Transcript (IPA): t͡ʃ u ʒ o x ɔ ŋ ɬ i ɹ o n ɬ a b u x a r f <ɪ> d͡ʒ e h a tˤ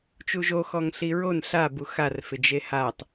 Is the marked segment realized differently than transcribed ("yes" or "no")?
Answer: no